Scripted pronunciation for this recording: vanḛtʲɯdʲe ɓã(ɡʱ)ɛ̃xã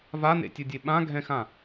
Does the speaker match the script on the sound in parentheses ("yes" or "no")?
yes